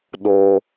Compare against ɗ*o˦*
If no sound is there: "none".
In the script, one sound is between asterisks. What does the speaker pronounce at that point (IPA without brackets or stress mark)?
o˦